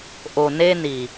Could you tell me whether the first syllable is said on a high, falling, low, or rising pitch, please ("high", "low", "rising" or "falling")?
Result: low